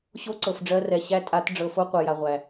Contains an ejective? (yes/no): yes